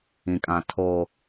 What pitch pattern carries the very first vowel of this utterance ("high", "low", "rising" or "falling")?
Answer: low